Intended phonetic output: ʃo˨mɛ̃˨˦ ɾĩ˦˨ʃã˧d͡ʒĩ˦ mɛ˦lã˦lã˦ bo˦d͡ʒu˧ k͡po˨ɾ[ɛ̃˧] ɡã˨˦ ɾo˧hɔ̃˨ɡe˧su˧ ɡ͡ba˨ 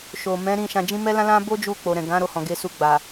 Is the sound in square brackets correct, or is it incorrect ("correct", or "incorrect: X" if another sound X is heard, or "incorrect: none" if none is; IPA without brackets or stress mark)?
incorrect: ɛ̃˨